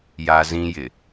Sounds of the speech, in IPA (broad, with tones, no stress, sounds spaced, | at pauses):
j a˦ z ĩ˦ j ɪ˨